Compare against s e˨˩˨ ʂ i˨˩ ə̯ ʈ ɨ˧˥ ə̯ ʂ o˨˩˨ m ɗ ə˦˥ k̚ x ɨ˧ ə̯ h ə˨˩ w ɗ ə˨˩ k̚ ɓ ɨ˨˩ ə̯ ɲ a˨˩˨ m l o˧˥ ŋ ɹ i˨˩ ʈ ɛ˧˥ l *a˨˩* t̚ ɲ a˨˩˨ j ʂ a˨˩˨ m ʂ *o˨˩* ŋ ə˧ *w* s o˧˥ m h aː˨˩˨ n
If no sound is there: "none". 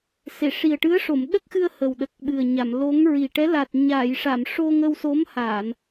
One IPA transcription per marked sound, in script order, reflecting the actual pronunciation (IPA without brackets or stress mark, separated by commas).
a˨˩, o˧, w